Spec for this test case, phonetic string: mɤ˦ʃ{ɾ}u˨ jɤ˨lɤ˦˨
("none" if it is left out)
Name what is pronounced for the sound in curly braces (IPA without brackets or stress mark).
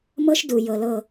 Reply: d